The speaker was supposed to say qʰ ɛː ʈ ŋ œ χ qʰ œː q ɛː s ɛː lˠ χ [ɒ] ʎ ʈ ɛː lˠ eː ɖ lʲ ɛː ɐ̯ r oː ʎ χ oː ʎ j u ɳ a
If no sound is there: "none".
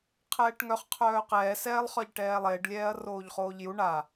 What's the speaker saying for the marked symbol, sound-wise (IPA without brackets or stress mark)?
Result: ɒ